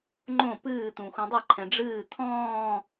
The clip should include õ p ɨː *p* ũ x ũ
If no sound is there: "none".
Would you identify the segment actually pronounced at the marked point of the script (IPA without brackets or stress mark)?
t̪